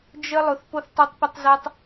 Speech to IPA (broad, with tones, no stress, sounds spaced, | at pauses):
d͡ʒ ə˦ lˠ ʊ˨ θ p o˦ θ tˤ o˦ tˤ p ə˦ tˤ z a˦ tˤ